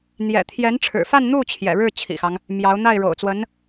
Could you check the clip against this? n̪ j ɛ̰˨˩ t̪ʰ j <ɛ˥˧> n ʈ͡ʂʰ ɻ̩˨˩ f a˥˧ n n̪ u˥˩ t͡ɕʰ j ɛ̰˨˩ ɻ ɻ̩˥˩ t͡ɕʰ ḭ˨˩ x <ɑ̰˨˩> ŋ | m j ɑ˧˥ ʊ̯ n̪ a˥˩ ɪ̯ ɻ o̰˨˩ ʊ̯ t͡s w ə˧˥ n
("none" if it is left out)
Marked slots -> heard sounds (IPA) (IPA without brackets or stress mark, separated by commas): ɛ˧˥, ɑ˦